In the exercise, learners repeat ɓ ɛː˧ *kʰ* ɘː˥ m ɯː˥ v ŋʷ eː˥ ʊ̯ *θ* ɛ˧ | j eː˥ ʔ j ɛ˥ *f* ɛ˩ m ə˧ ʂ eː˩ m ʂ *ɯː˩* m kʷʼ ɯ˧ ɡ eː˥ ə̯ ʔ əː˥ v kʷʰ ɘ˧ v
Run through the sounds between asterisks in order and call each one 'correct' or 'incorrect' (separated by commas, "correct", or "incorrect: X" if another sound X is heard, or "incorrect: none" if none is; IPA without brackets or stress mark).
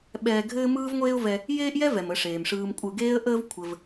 incorrect: ɡʱ, incorrect: v, incorrect: v, incorrect: ɯː˧